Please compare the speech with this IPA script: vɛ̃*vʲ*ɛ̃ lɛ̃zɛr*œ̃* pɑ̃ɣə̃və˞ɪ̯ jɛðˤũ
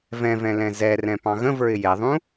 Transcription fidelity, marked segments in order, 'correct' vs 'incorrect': incorrect, incorrect

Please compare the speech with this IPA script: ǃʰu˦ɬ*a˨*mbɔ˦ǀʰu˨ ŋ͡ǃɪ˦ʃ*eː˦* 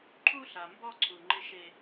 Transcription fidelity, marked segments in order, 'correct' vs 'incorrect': correct, incorrect

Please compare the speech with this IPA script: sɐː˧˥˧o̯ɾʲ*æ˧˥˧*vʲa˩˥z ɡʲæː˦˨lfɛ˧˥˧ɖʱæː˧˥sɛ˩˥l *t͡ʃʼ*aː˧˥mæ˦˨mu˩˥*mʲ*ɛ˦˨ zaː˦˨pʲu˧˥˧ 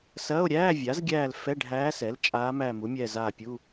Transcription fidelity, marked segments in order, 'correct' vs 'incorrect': incorrect, correct, correct

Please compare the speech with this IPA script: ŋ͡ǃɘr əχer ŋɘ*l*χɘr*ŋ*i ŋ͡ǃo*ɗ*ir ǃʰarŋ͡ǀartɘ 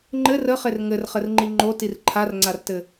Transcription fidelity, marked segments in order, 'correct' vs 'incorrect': incorrect, incorrect, incorrect

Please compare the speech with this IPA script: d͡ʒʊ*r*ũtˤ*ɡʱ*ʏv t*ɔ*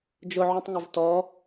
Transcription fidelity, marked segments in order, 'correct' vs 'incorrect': incorrect, incorrect, correct

